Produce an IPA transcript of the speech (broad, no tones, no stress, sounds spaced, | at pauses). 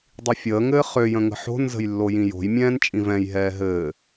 dˤ i fʲ əː ŋ ɘː χ ø j ə̃ ŋ ə̤ ħ o̤ n z ə̤ j lː o j ĩ j o̤ j mʲ ɛ̃ː n t͡ʃʼ ĩ v ɛ̃ j ɦ ɛː ɦ ɘː